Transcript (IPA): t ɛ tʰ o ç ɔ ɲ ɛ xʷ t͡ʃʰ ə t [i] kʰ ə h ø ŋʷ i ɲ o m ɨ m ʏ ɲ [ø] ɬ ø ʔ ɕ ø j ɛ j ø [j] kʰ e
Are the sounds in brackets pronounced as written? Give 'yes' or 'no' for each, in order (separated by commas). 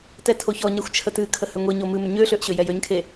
no, yes, no